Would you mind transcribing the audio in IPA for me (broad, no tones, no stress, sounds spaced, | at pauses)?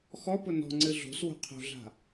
x ɔ p ʊ n ɔ̤ ŋ͡ǀ ɨ ɮ o̤ s w o̤ qʰ o̤ ɮ a̤